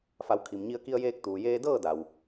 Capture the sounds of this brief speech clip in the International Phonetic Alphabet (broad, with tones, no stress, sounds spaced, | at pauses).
f a˩˧ w kʰ i˩ m ɲ i˧ ə̯ k i˧ ə̯ j eː˧ k̚ t̪ uː˩ j eː˧ d ɤː˥˨ d a˩ w